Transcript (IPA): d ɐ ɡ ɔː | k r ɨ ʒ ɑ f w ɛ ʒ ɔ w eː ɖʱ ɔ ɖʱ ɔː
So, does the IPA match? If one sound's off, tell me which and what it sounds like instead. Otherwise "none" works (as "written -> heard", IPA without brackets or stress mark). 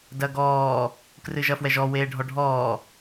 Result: ɑ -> ɐ